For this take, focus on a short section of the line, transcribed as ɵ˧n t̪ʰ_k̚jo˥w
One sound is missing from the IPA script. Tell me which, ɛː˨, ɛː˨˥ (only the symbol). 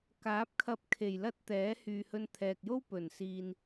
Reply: ɛː˨